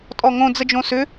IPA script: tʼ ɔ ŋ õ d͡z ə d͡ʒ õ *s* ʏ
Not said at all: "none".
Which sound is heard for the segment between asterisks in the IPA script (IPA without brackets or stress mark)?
s